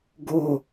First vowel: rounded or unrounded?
rounded